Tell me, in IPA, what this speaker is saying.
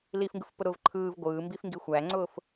l i f ŋ ɡ ɯ f p ʊ ɾ ʊ v ǃʰ ɯː v ɡʷ ɯː m b i f ŋ ɡ i xʷ æ ŋ͡ǀ ʊː f

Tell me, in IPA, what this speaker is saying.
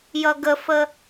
j ʌ ɡ ə f ə

